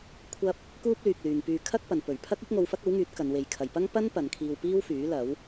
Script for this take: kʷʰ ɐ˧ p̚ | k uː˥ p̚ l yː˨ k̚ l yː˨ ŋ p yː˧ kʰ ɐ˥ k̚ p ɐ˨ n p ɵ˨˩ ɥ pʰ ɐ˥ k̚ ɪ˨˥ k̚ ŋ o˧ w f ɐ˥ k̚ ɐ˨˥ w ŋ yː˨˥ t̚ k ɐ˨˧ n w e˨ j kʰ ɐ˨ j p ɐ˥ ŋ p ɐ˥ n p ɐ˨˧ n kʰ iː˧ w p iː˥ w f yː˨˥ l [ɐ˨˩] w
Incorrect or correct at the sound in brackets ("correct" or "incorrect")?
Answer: incorrect